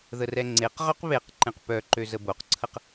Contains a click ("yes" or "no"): yes